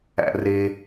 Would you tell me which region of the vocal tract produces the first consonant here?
tongue tip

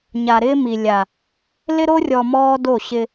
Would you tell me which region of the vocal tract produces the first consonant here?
palate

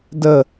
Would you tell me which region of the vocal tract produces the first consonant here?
tongue tip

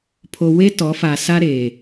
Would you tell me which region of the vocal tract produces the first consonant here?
lips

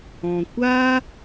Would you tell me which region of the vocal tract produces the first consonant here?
velum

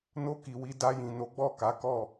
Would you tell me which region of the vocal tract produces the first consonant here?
tongue tip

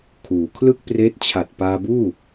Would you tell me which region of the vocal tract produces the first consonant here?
velum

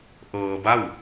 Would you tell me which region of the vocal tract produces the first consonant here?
throat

